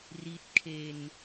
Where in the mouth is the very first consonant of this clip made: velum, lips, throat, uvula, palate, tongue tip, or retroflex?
tongue tip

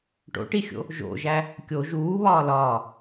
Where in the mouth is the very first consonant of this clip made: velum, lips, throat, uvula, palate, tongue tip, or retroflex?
retroflex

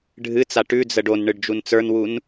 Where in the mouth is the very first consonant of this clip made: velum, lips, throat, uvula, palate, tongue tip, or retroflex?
retroflex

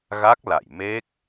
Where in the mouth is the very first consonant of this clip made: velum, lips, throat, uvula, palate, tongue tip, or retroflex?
velum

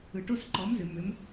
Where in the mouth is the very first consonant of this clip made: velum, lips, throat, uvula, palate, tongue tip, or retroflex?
retroflex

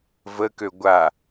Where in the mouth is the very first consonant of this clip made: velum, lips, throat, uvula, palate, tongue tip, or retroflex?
lips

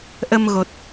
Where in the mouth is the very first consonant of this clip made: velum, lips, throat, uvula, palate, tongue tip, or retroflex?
throat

